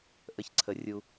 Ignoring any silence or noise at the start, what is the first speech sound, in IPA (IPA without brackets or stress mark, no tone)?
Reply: ʔ